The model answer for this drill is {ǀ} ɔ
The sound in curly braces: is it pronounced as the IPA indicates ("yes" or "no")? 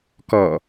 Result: no